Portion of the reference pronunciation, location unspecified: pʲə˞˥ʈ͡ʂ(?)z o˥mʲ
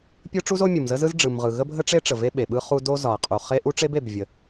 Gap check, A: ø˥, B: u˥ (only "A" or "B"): B